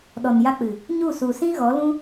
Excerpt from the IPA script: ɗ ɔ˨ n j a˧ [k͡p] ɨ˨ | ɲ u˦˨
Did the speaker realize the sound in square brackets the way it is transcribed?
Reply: yes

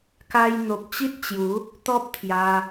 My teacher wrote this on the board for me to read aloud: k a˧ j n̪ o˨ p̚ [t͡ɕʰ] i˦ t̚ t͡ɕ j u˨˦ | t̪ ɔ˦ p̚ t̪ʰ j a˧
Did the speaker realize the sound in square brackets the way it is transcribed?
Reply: no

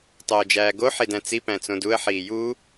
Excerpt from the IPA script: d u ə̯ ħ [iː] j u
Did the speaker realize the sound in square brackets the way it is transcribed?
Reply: yes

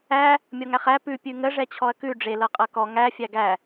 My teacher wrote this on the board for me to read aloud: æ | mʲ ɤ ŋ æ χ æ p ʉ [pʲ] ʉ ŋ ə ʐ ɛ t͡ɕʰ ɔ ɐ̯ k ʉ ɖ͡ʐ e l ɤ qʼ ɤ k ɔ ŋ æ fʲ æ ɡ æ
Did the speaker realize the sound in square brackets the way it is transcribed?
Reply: yes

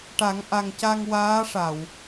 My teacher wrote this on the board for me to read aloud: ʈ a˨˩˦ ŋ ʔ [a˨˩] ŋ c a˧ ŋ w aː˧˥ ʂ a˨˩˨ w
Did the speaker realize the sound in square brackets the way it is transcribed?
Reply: yes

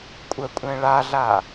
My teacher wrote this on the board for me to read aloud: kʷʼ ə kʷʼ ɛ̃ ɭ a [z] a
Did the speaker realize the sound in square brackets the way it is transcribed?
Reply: no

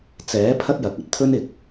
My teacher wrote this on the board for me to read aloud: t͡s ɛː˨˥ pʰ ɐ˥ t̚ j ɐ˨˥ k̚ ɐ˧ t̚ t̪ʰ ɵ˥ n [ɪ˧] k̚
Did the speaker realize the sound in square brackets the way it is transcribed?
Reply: no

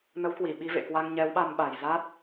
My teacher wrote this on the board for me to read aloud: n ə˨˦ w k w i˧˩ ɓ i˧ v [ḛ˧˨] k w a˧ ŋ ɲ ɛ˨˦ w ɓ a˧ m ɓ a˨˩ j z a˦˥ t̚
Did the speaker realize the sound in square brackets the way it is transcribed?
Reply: yes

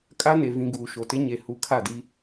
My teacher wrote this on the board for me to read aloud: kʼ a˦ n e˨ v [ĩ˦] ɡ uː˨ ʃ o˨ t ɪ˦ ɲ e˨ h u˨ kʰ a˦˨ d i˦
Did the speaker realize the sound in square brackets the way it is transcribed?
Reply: no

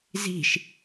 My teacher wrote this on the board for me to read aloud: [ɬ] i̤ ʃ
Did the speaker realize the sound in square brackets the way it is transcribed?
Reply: no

